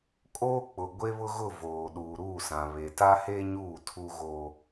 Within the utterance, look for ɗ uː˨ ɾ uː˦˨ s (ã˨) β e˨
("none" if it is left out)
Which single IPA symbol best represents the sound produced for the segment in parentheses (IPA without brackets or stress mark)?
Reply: ã˨